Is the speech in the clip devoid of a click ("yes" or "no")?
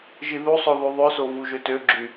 no